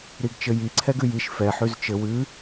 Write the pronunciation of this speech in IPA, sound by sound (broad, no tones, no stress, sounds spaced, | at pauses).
ɾ i ɡ t͡ʃ ɘ j i ǀʰ ɛ ɡ ʉ j i ʃ f ɛ ħ ʉ z t͡ʃ ɘ w ʉ